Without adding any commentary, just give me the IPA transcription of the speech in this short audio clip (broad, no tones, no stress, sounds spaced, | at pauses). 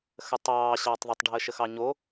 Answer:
x ə tˤ ɑː ɕ ɑː tˤ ðˤ ə tˤ ɖʱ əː ʃ ə x ɑ ɲ o